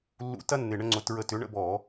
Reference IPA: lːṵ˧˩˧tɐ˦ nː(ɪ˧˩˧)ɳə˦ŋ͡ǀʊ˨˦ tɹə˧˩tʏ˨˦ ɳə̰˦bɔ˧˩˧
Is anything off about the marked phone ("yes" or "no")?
yes